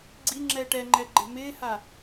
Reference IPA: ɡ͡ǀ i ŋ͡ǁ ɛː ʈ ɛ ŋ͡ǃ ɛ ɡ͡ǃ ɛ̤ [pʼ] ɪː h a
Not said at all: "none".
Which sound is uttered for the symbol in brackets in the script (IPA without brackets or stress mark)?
m